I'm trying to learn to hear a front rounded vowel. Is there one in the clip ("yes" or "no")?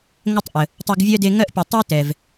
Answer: no